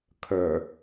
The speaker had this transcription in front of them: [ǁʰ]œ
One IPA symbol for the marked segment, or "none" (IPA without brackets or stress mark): kʰ